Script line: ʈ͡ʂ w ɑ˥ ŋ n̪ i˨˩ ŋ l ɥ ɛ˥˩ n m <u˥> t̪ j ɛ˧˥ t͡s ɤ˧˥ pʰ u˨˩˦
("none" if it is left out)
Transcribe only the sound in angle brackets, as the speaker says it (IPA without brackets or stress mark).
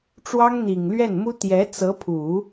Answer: u˥